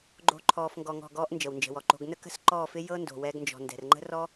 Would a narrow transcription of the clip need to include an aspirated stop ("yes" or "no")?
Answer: yes